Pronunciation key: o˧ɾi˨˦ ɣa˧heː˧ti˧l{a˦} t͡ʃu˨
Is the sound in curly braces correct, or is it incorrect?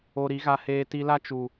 correct